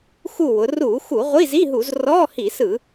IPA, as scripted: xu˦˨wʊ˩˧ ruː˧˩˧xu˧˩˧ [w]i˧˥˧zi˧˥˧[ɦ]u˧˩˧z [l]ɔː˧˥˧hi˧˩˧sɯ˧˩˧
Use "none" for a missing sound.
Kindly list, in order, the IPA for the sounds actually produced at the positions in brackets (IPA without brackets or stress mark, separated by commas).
ʁʷ, ɦ, r